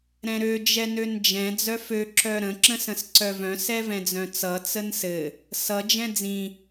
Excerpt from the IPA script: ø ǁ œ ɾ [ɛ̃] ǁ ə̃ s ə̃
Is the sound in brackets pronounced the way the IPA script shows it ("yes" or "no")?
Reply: no